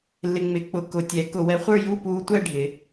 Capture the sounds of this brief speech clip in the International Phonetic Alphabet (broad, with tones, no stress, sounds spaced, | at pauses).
lː ɪ˧ ŋ͡m ɪ˧˩˧ k͡p ʊ˧ k ʊ˧˩˧ tʲ ɛ˨˥ k ʊ˧˩˧ w ɛ˨˥ χʷ ə˞˥˧ j u˥˧ p uː˧ tʷ ɛ˥˧ ɖʱ ɪ˩˧